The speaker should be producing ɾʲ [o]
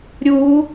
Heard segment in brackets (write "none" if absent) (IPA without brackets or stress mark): u